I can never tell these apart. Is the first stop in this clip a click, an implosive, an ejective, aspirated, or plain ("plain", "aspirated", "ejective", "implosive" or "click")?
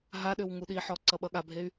implosive